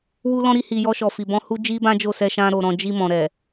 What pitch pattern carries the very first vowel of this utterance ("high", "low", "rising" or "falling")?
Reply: high